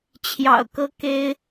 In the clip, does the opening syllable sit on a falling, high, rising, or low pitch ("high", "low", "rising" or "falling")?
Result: low